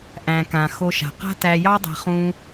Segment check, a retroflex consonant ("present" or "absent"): absent